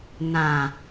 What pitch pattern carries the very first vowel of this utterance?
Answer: low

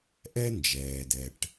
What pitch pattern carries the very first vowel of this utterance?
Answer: high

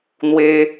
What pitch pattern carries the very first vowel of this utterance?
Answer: high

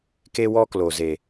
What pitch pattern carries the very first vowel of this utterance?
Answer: high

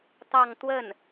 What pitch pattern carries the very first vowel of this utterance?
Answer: falling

